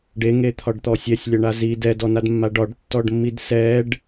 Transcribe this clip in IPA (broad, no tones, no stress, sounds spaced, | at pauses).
ɖ e ŋ e t̪ʰ ɒ ɖ t̪ ɔ sʲ ɛ sʲ lʲ ɒ ɳ a z i d ɛ d ɔ n a d mː a ɖ ɒ ɖ tː ɔ ɖ mː i d s ɛ ɖ